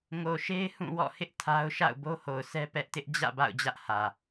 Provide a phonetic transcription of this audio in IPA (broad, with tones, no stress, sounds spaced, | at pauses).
ŋ o˨ ʃ e˦ ɪ̯ h ũ˦˨ w ɔ̰˦˨ h ɪ˦ ʔ tʰ a˦ ʊ̯ ʃ a̰˦˨ ʊ̯ b o˦ h o˨ ʊ̯ s ɛ˦ p ɛ˦ ʔ t ɪ˦ ʔ d͡ʑ ä̰˦˨ b a̰˦˨ ʊ̯ d͡ʑ ä˦ ʔ h ä˨